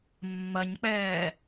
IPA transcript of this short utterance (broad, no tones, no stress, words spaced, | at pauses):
mːɐɲk͡pɛː